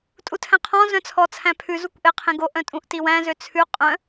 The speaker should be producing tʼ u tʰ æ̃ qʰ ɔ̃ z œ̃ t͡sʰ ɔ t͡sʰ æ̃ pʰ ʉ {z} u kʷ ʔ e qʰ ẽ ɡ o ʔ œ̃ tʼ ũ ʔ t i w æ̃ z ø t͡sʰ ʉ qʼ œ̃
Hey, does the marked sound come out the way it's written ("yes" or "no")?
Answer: yes